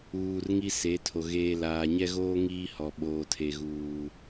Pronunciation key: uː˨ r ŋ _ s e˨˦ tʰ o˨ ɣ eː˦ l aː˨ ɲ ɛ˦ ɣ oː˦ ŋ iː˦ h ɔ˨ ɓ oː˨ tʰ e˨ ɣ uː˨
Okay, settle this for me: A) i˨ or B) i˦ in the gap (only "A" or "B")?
B